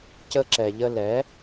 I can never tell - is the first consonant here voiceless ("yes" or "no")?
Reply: yes